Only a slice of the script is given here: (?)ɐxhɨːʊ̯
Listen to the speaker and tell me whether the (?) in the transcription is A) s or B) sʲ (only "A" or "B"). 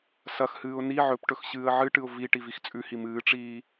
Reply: A